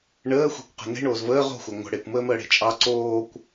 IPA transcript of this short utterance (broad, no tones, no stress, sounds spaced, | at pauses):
ɳ əː xʷ e̤ kʷ q ə̤ n e̤ ɳ oː z v əː ʁ o̤ xʷ a ŋʷ ə̤ ɽ e kʷ m əː m əː ɽ e̤ t͡ʃʼ ɑ ǀ oː kʷ